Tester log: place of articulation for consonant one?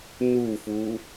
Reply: alveolar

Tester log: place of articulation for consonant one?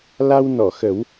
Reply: alveolar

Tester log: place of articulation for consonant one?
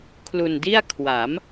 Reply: velar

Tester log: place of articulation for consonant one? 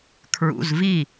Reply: velar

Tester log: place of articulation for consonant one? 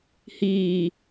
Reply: glottal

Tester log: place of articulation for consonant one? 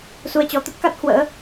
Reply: alveolar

